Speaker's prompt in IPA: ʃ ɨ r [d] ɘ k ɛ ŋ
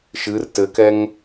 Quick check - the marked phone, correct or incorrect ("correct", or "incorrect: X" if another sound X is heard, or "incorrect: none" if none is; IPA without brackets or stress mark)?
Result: incorrect: t